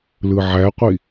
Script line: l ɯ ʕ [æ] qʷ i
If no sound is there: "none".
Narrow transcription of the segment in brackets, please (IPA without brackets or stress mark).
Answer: æ